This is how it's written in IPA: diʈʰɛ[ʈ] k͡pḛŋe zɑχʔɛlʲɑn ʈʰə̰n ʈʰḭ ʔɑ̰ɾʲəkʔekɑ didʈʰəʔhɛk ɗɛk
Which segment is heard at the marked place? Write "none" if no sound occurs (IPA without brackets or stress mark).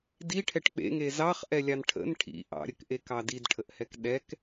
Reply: ʈ